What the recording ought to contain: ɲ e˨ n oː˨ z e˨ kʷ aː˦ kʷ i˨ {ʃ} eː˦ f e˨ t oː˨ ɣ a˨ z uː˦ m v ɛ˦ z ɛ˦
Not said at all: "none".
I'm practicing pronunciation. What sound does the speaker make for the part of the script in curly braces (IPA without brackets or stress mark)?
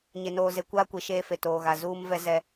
ʃ